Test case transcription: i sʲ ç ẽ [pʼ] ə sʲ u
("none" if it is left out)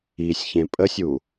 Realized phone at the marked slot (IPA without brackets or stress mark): pʼ